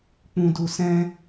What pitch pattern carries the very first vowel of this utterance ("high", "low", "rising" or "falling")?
low